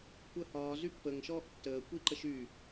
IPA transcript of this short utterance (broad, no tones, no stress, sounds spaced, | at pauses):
kʷ əː h ɒː z y pː əː ŋ ʃ ɔː ʔ tː əː kʷ i ǃ ə ʃ y